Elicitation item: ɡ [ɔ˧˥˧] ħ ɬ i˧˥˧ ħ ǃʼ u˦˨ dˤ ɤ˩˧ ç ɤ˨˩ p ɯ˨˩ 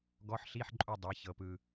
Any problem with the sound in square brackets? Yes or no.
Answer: no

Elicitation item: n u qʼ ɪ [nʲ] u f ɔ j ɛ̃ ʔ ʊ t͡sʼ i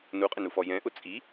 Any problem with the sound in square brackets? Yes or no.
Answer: yes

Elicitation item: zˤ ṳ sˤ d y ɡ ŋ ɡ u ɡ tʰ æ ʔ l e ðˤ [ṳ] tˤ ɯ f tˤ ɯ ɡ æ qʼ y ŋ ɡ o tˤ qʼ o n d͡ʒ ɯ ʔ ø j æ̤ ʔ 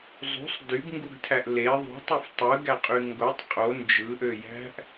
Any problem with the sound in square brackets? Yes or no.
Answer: no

